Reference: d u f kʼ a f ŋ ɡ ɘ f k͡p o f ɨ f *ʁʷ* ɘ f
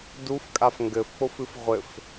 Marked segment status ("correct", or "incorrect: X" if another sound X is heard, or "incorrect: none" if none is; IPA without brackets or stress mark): correct